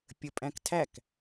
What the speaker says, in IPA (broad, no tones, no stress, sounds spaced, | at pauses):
pʲ ə pʼ æ̃ k tʰ æ k